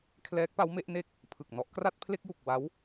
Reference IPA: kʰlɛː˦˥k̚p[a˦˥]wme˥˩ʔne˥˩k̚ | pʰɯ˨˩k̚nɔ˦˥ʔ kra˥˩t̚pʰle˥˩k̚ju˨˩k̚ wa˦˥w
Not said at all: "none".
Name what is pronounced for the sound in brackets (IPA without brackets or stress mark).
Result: a˦˥